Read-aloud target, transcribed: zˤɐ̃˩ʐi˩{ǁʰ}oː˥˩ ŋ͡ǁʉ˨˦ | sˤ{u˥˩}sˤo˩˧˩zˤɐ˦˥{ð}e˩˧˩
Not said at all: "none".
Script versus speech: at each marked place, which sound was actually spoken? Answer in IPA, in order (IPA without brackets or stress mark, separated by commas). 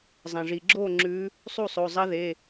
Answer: ɡ͡ǁ, u˥˩, ð